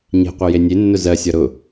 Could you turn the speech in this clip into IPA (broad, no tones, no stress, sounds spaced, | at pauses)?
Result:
ɲ e̤ qʷ ɜ j e nʲ e nː ʊ z ɜ sʲ ɒ ɾ ʊ